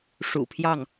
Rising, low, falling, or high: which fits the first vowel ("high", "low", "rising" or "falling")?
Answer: low